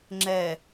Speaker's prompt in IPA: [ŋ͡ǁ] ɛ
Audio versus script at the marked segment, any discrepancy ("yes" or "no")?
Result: no